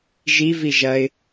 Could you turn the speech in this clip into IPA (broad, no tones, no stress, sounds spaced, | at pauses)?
ʒ i v i ʒ ɐ ɪ̯